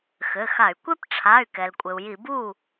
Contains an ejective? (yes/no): yes